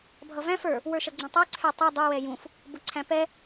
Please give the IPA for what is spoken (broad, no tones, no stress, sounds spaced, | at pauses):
bʱ ʌ v æ̃ f ə˞ | w ə˞ ʃ ʌ ɡ͡ǀ ɛ̃ tˤ ə˞ ǀʰ ɛ tˤ ɪ dˤ ʊ w ɛ j ũ f | b ʊ ǀʰ æ̃ p ɛ